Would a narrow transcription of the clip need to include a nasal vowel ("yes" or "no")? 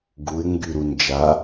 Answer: no